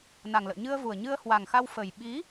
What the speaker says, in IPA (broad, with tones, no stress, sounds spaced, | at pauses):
n a˨˩ ŋ l ə̰ː˧˨ ɲ ɨ˧ ə̯ v u˨˩ ə̯ ɲ ɨ˧ ə̯ h w a˨˩ ŋ x a˧ w f əː˨˩ j ɓ i˨˦